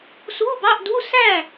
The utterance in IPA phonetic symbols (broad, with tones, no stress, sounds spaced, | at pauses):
s u˧˥˧ b ɑ˧˥˧ ʔ d u˧˥˧ s æ˥˩